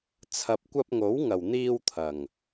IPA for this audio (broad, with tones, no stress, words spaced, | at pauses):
t͡sʰɐ˨p̚kʷɐ˧p̚ŋo˨˥w ŋɐ˨˩wn̪iː˧wt̪ʰɐ˨˩ŋ